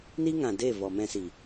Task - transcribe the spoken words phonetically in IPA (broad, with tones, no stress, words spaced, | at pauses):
ni˦ŋã˨de˦˨ vɔ˨ mɛ̃˧si˨